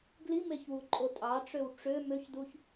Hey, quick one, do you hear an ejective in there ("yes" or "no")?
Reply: yes